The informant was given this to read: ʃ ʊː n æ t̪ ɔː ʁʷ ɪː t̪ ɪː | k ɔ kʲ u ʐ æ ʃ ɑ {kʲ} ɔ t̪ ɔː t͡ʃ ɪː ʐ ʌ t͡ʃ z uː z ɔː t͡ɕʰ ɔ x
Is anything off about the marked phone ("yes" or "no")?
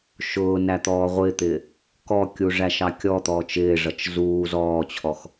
no